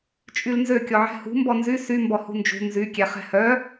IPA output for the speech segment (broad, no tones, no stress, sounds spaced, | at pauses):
t͡ʃʼ y l n z ø kʲ ɔ ʕ ɛ̤ h ṳ m b ɔ n z y s y m b ɔ h ṳ n d͡ʒ ṳ n z y kʲ ɛ χ ɛ̤ h œ